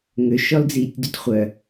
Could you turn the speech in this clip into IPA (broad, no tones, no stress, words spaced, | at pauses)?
ŋøʃɔld͡ziːtʲdotʲ χʷœ